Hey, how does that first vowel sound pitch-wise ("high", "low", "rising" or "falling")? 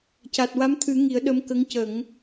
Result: low